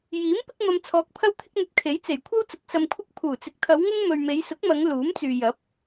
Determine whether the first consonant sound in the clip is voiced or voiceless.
voiced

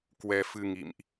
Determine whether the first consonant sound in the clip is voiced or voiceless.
voiceless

